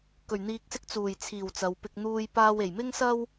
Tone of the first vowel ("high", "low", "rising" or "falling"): low